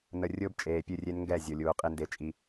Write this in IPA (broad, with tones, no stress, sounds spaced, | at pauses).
n ə˨ rʲ ʊː˦ b t͡ʃʼ eː˨ pʲ ɨ˦˨ rʲ e˦ n ŋ ɡ ɛ˦˨ zʲ o˨ lʲ uː˨ qʼ i˦ n d e˦ t͡ʃʼ i˦